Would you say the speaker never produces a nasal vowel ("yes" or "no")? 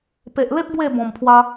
no